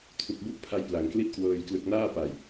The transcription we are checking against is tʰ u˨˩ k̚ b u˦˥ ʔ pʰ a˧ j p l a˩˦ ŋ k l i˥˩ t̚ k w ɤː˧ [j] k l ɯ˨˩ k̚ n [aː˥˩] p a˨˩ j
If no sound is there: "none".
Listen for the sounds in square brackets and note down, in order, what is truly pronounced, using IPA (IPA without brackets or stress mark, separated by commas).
j, aː˥˩